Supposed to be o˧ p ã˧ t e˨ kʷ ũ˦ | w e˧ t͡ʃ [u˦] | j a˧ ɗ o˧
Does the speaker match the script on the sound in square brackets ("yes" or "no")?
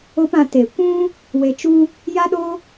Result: yes